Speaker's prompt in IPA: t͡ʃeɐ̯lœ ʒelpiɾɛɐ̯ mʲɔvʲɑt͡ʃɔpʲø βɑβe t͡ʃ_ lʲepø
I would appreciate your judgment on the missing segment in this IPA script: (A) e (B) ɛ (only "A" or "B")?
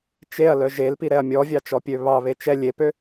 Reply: B